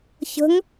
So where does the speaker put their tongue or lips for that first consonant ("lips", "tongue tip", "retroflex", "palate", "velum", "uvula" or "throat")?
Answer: palate